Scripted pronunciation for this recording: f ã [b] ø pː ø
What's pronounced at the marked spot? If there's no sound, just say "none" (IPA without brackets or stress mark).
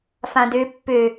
d